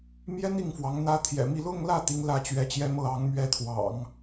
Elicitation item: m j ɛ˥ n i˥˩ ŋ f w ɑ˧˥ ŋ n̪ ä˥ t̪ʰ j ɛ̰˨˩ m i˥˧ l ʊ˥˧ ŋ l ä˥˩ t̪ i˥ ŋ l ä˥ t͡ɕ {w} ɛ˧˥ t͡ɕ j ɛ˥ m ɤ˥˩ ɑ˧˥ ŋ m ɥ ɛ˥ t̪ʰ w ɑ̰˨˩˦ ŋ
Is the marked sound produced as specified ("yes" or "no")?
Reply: no